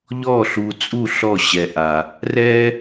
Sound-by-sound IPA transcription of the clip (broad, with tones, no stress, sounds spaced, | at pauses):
ʎ ɔ˥˧ ɬ u˧ t͡sʼ u˥˧ ɬ ɔ˥˧ ɕ ɛ˧ ʔ a˧ | r ɛ˥